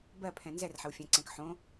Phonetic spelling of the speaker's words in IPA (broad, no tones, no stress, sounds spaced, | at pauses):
b ɜ pʰ ɛ̃ n z ɛ r ħ ə w fʲ ɛ̃ ǀ ɛ̃ k ħ õ